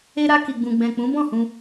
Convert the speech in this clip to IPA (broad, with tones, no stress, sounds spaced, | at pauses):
e˦ ɾ a˦ k i˧ ɡ͡b ũ˧ ɡ͡b ɛ̃˨ k͡p ũ˨˦ b ɔ̃˦˨ h ũ˧